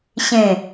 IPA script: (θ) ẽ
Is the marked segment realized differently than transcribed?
yes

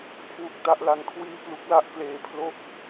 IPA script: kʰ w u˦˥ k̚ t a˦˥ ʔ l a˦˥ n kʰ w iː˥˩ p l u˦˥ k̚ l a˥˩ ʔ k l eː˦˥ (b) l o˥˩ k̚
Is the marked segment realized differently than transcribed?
yes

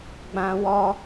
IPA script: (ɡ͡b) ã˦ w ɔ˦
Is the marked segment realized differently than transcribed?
no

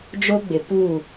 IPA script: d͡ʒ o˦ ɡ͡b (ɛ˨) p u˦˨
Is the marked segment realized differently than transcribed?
yes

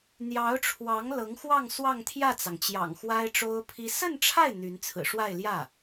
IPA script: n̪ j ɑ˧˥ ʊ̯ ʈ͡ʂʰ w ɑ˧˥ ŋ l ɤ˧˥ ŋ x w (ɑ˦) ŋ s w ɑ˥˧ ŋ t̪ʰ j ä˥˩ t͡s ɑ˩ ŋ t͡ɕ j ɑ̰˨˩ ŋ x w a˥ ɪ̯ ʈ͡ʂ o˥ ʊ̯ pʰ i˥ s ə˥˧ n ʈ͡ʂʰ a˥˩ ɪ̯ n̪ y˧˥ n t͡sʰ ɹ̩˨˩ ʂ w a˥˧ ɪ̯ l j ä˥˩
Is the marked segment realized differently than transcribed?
yes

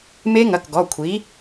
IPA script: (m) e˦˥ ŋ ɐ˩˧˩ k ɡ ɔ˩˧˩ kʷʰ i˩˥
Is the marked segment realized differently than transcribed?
no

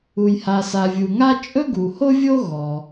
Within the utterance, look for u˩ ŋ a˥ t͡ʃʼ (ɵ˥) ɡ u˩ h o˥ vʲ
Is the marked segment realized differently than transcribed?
no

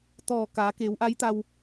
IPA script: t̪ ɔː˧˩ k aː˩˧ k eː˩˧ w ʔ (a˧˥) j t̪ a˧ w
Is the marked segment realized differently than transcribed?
no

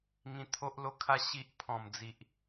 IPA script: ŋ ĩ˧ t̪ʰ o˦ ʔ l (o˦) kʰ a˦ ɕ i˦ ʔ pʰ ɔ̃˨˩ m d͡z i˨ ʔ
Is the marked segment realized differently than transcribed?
no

